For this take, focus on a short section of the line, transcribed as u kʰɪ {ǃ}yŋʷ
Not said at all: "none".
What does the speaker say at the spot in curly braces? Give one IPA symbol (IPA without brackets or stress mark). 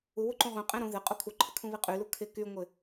k